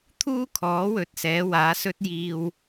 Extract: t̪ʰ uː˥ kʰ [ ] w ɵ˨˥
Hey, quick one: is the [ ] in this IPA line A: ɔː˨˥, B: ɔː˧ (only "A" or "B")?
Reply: A